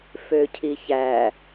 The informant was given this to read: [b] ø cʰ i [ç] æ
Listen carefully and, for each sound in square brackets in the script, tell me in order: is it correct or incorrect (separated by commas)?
incorrect, correct